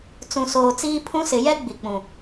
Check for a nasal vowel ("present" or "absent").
present